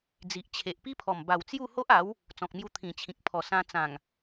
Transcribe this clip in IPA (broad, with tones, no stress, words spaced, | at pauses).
d͡zi˨ʔ t͡ɕʰe˨ʔpi˦pʰɔ˨˩m ba˨˩wt͡sju˥˧ ho˦ʔa˨˦w | t͡sɔ̃˨k̚mju˧ t̪ʰĩ˨˩t͡ɕʰĩ˨k̚ pʰɔ˨˩sã˧ t͡sã˨˩ŋ